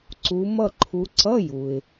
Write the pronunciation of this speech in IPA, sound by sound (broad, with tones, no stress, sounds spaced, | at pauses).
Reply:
ǀ u˨˦ m ʌ˥˧ ǃʰ u˨˦ ǀ ʌ˧˥˧ j u˩ ɪ̯